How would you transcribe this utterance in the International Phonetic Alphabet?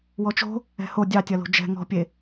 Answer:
w ɔ t͡ʃ o̤ | ɛ̤ h o dʲ ɑ tʲ ɐ l o̤ d͡ʒ ɛ̤ ŋ ɔ̤ pʲ e

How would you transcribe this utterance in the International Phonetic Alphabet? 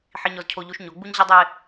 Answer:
ħ i˦ ɲ ɔ˦ z cʰ o˦ ʎ u˦ ʃ ɲ o˨˦ ɡ͡b u˦ ɲ ʑ ɘ˦ dˤ e˦

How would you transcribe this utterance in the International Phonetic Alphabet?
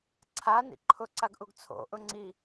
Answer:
ǀʰ a n ḭ ǃʰ ʊ ǀ a ɡ ʔ u ɡ t͡sʰ o̰ ʔ ʊ ŋ͡ǀ i

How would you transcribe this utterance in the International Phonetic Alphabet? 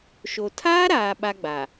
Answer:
ʃ o˨ tʰ aː˦ ɾ aː˨ ɓ a˦ ɡ͡b a˨

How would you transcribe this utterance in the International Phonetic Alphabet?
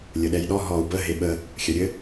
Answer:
lʲ ə ɗ ɛ j ɗ ɔ ɦ ɔ u̯ b ə ɦ e ɓ ə | xʲ ɐ ɾʲ ɘ

